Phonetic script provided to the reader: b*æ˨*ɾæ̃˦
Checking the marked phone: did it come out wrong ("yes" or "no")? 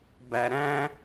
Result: no